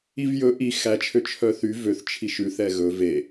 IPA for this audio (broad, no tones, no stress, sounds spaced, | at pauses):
i v j ɵ ʔ i x æ t͡ʃʰ ø t͡ʃʰ œ θ y v ø θ t͡ʃʰ i ʃ ʉ θ ɛ ɣ ɵ v e